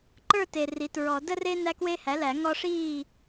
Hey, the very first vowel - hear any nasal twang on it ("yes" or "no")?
no